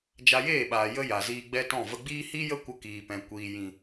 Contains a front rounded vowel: no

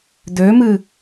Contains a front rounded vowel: yes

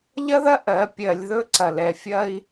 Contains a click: yes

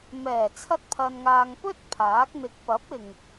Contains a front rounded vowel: no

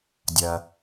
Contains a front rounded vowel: no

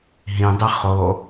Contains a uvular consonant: yes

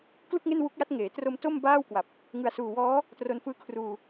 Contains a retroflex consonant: no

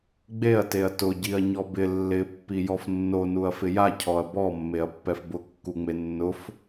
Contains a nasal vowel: no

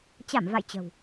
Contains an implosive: no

